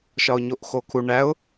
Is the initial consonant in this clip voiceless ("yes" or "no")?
yes